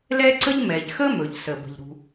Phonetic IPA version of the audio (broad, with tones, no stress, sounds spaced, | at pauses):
l ɛ˥ ǀ ə˥ ʎ m ɛ˩ ʎ x ə˥ m ɵ˩ ʎ s ə˩ b ə̤˩ ʎ ɾ ṳ˩